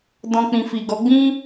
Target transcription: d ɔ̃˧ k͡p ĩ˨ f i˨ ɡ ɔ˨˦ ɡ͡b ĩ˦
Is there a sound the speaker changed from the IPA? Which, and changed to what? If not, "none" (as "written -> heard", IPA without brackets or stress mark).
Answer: none